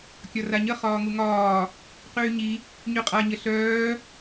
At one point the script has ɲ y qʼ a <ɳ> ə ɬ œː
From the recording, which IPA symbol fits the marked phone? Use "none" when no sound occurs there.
ɲ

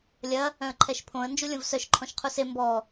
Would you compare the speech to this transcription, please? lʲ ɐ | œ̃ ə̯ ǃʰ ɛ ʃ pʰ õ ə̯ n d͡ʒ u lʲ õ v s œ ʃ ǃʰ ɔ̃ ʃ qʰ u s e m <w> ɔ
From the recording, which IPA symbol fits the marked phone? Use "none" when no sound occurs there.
b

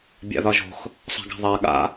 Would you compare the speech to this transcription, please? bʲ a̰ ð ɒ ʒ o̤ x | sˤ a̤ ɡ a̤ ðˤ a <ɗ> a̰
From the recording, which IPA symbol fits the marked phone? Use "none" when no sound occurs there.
ɠ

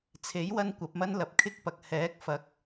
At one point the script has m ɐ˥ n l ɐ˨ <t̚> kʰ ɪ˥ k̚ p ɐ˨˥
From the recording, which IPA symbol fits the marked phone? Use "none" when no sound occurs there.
p̚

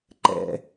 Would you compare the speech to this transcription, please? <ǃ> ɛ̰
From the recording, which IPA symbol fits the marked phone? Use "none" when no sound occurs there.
ǃ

